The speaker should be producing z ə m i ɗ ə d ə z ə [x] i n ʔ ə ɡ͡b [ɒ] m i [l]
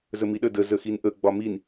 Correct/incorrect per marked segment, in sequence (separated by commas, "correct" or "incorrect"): correct, correct, incorrect